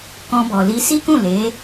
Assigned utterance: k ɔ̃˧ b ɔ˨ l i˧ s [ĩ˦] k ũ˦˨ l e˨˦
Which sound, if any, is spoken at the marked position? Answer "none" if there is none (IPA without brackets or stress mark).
i˦